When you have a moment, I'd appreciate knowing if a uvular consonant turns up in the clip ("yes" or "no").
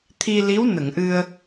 no